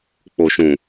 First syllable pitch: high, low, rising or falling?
low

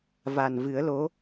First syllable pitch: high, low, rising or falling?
low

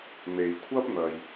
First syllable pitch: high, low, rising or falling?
low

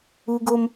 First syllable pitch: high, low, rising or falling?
high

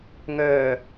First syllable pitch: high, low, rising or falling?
low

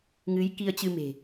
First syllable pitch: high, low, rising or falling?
rising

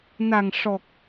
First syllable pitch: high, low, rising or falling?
low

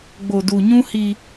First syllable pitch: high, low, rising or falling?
low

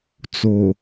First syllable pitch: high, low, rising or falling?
low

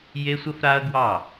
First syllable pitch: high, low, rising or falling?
high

